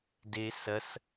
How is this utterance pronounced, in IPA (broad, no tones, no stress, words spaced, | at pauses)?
de sɐs